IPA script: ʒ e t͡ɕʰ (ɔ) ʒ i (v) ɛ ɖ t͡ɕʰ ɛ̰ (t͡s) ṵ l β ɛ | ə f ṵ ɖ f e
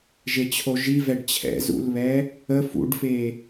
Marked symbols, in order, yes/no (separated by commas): no, yes, no